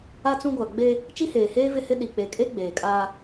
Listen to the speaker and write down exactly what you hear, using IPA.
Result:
a˦ t͡s ũ˦ ɡʷ a˨ ɡ͡b e˦ | t͡ʃ i˦ h eː˨ h eː˦ v ɪ˦ h ɪ˦ ɗ i˨ k͡p e˨ kʼ e˦ ɡ͡b eː˨ kʼ aː˦

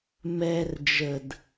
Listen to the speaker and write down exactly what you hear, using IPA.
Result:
m ɛ r d͡ʒ ə d

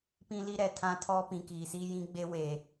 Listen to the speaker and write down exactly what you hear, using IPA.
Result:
p ĩ˦ l i˦ ɾ ɛ˨ tʰ ã˦ tʰ ɔ˦ p ĩ˨ k iː˨ s iː˦ j ĩ˦ ɡ͡b e˦ w e˨

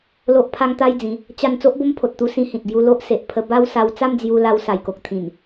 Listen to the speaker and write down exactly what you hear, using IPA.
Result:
l o˦ ʔ pʰ a˦ ŋ t̪ a˦ j d͡z ĩ˨˦ | t͡ɕ a˥˧ n t͡s o˦ ʔ b o˦ m pʰ o˨ t̚ t̪ u˧ s ĩ˧ h ĩ˨ t̚ ɡ j u˧ l o˦ ʔ s e˨ ʔ pʰ ə˧ b a˦ w s a˧ w t͡s a˥˧ m d͡z j u˧ l a˧ w s a˨˩ j k o˨ k̚ t̪ʰ ĩ˨˩ n

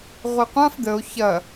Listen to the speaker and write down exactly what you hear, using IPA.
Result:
ʁʷ i qʷ ã f d̪ ə o̯ ç ɐ

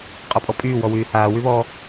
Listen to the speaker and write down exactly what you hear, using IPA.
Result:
qʼ ɔ pʼ ɔ pʼ yː w ɔ w yː h aː w y β ɔ

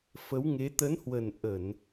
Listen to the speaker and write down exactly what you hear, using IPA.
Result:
f ə˨˦ w ŋ e˨˦ t̪ ə˨˦ n h w ə˨˩ n ʔ ə˧˩˨ n

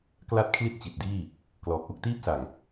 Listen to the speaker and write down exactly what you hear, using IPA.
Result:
k l a˥˩ t̚ kʰ l i˥˩ t̚ t͡ɕ i˨˩ t̚ d iː˥˩ | k l ɔː˨˩ k̚ ʔ o˥˩ k̚ t iː˥˩ p̚ s a˨˩ ŋ

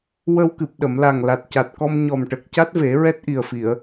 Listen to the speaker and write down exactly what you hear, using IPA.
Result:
w ə˧ w k ɨ˨˩ p̚ ɗ ə˨˩˨ m l a˨˩ ŋ l a˨˩ t̚ c a˨˩ t̚ k ɔ˧ m ɲ ɔ˨˩ m ʈ ə˨˩ k̚ c a˦˥ t̚ v e˨˩˦ ɹ ɛ˦˥ t̚ ʔ i˨˩ ə̯ f i˨˩˨ ə̯

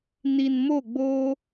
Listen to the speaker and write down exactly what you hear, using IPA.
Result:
n i˨ n m o˦˨ ɡ͡b oː˦

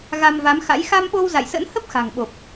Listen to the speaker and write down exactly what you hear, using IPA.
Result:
ɣ a˧ m v a˨˦ m x a̰˧˥ j x a˧ m ɓ o˧ w z a̰˧˨ j s ə̰˧˥ n h ə˦˥ p̚ x a̤˨˩ ŋ ɓ o˨˩ p̚

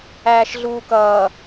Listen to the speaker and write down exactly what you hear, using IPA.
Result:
æː ʃ ɮ uː k ʌː

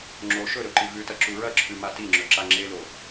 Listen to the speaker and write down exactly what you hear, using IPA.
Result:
ŋ͡ǁ o ʃ ɵ ɾ ɵ ǃ i v ʉ t ɐ ǁ u ɹ ɐ ǁʰ ʉ m a t i ŋ͡ǁ ɵ ǁ a ŋ͡ǁ e l o

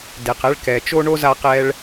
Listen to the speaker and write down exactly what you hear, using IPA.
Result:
d e˩ q ɛ˧ ɭ k ɛ˩ t͡ʃ o˥ ɳ o˥ z a˧ q ɛ˧ ɭ

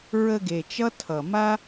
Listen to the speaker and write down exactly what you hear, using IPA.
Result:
ɹ ə˧ ɡ e˨ t͡ʃ ʌ˦ tʰ ʌ˨ m a˦

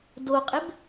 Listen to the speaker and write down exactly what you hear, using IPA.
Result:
d o qʼ ɪ b

